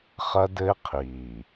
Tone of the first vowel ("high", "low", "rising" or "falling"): high